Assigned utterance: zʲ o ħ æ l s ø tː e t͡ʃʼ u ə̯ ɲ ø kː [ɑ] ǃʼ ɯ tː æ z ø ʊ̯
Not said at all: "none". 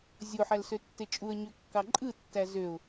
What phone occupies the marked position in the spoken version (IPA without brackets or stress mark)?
ɑ